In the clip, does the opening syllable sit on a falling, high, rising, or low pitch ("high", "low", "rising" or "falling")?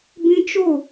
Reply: high